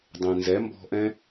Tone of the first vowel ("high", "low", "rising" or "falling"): low